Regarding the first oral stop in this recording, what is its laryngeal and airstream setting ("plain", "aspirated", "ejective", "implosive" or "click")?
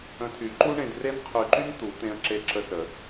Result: aspirated